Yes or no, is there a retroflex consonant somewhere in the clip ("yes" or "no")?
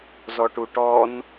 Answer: yes